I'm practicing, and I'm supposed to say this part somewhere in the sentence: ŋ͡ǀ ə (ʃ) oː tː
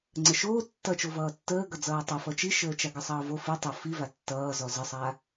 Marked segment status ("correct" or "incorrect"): correct